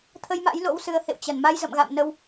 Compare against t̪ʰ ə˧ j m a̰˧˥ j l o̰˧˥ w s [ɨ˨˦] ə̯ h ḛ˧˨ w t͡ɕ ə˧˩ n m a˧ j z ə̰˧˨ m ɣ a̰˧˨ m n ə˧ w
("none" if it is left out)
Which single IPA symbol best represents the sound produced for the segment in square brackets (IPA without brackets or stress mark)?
ɨ˨˦